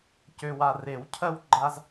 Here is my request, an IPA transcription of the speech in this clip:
c ø˨ w a˨ r e˨˩˦ w cʰ ɜ˦ w ɡ͡ǃ a˦ z

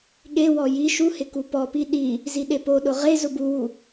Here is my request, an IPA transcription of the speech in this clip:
ɠ e w ɔ j i ʃ u h ɪ k u p ɔ p i ɗ i | z i ɗ e p o ɗ ʊ ʁ e z ʊ b u w u

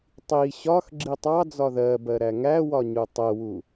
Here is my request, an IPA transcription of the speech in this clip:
tˤ i ɕ ɒ x ɡ͡ǁ i tˤ ɑ d͡z ɒ ð ɜ b ɜ ɾ æ ŋ æ w ɒ ɲ u tˤ ə w u

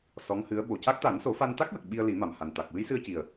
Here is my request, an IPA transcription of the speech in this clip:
s ɔ˧˥ ŋ h ɨ˧˥ ə̯ ɓ o˨˩ c a˦˥ k̚ t̪ a˨˩˦ n s o˨˩˦ f a˧ n t̪ a˦˥ k̚ w ə˨˩ k̚ ɓ i˧ ə̯ l i˨˩˦ m a˨˩ m h a˨˩ n t̪ a˨˩ k̚ w ɨ˧˥ j s ɨ˧ ə̯ c i˨˩ ə̯

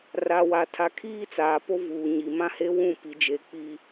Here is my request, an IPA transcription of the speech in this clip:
r a˨ w a˨ tʰ a˨ kʰ iː˦ t͡s aː˨ p o˦ v uː˨ ɲ i˨ m ã˦ h e˦ w ũ˦˨ p i˨˦ d͡ʒ e˨ k͡p i˨

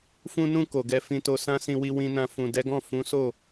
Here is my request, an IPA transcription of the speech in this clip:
f ũ˧ n ũ˧ k o˨ ɡ ɛ˧ f ĩ˧ t o˧ s ã˦ s ĩ˧ w i˧ w ĩ˧ n ã˧ f ũ˨ d ɛ˨˦ ɡ ɔ̃˦˨ f ũ˨˦ s o˦˨

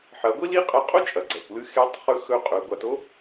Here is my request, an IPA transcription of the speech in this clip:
ħ ɐ˩˧ ɡʷ i˥ l i˧˥ qʼ ɐ˧ qʼ o˥ t͡ʃʼ ɐ˩ ɡ͡ǀ ɐ˩ kʷ l ɨ˧ x e˧˥ tˤ χ ɵ˧˥ x ɵ˧ qʼ ɵ˩˧ ɡʷ a˩˧ t o˥

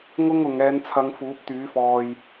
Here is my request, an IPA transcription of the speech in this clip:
ŋ ʊ˥ ŋ ʊ˨ ŋ ɛː˨˧ n t͡sʰ ɐ˨˧ ŋ f uː˨˥ p̚ t̪ yː˨˥ f ɔː˧ j

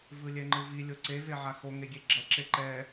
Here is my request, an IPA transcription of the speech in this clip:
v ɯ lʲ ɛ ŋ͡ǃ ɯ v i lʲ o ǀ e v e ʕ a x o ŋ e ɡʲ e ɡ͡ǁ ʌ ǁ e ǃ ɛ

